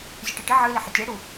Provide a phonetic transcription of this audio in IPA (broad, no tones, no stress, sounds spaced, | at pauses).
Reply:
zʲ ɨ ʈ ɨ ʈ ɪ ʕ ɨ l ɪ ħ ɪ tʲ ɛ ɽ u